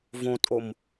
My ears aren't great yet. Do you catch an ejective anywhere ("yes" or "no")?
yes